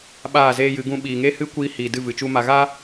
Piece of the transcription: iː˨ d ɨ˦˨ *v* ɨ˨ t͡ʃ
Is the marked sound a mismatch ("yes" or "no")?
no